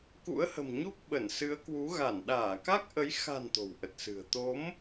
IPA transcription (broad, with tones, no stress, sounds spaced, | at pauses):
k ṵ˧˥ ə̯ h ə̤˨˩ m ɲ u˦˥ k̚ ɓ ə˧˩ n s ɨ˨˦ ə̯ k w u˨˦ ɣ a˧˩ n ɗ aː˧˩ k a˦˥ k̚ ʔ ə˨˦ j x a̤˨˩ n t̪ o̤˨˩ w ʔ ə˨˩ t̚ s ɨ̤˨˩ ə̯ t̪ o˨˦ m